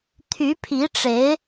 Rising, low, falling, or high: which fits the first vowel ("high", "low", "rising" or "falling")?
rising